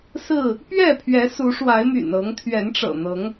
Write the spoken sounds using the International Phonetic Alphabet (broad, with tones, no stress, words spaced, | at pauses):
sɹ̩˥˨ | pɥɛ˥˨pʰɥɛ˨˦ su˨˦ʂwa˨˦ɪ̯my̰˨˩n ɤ˨˦ŋ t̪ʰɥɛ˨˦nʈ͡ʂɤ̰˨˩n̪ɤ˨˦ŋ